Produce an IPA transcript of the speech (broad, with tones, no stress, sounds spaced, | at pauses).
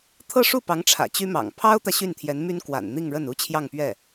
t̪ʰ ɤ˥˧ ʂ u˥˩ p ɑ˧˥ ŋ ʈ͡ʂʰ ä̰˨˩ t͡ɕ y˥ m ɑ̰˨˩ ŋ pʰ ɑ˥ ʊ̯ t̪ ä˨ ɕ y˥˩ n t̪ʰ j ɛ˧˥ n m y˥ n k w a̰˨˩ n n̪ i˥˧ ŋ ɻ ə˥˩ n u˥ t͡ɕʰ j ɑ˥˧ ŋ p ɥ ɛ˥˩